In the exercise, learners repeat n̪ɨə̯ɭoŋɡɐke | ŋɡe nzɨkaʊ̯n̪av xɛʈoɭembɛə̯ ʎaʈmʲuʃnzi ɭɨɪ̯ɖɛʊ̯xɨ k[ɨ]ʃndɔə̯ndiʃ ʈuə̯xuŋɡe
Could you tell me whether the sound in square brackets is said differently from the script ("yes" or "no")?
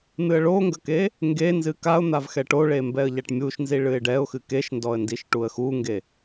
yes